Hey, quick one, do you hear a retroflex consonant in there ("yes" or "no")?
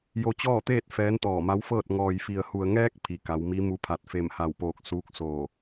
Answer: no